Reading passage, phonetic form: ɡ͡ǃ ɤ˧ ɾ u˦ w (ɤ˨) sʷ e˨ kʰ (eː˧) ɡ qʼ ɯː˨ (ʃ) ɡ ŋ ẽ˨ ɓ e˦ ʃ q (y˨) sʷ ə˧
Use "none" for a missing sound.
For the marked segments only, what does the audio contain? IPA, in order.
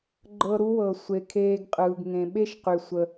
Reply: ɤ˨, eː˧, none, y˨

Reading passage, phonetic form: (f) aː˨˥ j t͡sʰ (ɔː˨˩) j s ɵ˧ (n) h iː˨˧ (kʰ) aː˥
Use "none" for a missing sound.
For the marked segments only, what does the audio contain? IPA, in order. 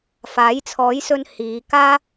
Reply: f, ɔː˨˥, n, k

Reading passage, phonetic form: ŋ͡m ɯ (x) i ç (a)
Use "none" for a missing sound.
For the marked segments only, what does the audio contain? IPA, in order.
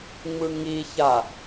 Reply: ŋ, a

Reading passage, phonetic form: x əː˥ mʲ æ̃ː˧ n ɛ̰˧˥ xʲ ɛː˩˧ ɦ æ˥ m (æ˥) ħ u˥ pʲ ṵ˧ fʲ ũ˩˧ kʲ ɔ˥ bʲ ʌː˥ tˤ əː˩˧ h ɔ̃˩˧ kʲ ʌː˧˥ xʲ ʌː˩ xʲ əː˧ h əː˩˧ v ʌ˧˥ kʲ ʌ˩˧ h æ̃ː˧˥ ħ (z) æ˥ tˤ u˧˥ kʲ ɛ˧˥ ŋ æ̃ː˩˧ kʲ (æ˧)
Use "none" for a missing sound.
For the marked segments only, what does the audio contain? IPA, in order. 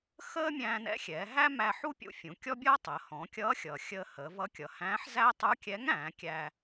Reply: æ˧, z, æ˧

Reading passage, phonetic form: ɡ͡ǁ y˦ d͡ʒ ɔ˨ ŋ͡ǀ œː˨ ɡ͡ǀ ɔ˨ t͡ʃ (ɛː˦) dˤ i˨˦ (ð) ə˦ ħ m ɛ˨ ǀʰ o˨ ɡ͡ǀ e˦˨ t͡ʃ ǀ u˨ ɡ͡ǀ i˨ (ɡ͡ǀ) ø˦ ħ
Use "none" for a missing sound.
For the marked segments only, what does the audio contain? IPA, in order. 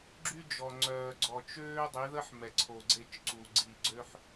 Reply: øː˦, ð, ɡ͡ǀ

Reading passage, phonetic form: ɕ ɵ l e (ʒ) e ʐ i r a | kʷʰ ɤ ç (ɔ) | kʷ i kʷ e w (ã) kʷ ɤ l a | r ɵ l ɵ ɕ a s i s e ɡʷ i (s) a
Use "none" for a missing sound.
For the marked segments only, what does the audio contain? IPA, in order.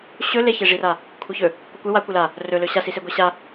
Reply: ç, ɵ, a, ɕ

